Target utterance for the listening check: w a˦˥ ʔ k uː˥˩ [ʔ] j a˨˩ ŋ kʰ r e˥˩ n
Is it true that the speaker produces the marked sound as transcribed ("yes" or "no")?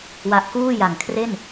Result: no